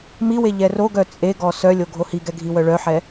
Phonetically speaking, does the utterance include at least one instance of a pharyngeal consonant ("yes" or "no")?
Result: yes